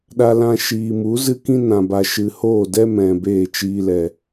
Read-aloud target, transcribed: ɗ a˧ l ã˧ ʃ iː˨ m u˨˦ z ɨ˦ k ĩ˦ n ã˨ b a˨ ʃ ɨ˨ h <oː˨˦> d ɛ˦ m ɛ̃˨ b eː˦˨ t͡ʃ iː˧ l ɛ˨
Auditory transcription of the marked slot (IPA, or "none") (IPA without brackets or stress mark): oː˦˨